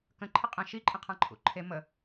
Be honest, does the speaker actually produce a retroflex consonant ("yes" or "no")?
no